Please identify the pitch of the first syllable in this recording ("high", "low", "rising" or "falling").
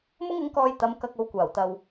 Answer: high